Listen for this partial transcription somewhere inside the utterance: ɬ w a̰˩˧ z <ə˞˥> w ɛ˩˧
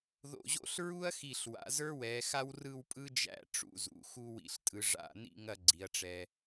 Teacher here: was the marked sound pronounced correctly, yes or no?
yes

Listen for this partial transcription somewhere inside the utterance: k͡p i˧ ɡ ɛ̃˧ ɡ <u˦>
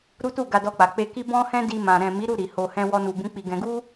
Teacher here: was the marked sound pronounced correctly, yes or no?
yes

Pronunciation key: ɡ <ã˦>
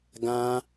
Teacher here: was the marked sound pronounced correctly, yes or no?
yes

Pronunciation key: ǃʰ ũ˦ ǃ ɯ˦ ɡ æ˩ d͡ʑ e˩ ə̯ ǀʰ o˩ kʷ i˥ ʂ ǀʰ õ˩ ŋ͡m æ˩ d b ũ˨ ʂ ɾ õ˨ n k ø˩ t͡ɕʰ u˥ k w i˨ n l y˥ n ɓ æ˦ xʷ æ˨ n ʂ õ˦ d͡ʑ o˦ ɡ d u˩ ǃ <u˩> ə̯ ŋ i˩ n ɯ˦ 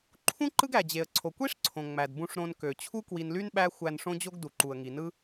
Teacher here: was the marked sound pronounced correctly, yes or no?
yes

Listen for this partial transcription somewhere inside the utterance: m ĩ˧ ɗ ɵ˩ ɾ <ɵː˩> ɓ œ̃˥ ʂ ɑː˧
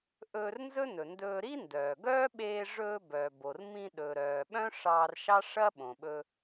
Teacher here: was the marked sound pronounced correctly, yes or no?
no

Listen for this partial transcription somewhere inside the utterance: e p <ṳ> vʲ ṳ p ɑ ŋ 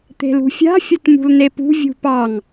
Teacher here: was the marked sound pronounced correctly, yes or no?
yes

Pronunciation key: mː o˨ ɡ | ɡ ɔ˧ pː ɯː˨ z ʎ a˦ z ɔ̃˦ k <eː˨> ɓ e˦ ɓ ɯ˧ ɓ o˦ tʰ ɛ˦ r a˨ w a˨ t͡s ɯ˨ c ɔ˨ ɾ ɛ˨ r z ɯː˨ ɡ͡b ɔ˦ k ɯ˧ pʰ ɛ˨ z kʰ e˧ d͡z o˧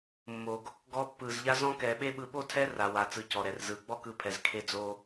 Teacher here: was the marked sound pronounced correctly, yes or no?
no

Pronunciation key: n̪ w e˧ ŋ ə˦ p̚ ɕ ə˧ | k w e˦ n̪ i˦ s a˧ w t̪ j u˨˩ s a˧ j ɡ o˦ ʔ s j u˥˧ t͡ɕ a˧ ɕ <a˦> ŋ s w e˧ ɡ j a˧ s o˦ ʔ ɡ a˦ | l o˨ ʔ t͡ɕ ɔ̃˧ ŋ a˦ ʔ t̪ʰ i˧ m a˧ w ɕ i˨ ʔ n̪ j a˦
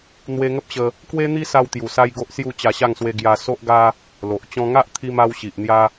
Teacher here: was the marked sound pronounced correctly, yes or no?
no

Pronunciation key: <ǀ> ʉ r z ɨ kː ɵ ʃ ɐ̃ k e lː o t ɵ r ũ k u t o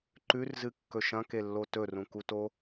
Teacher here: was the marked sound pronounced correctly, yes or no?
no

